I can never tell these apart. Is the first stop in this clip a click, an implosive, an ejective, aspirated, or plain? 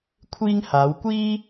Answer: aspirated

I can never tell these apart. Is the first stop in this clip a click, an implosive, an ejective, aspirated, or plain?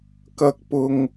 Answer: plain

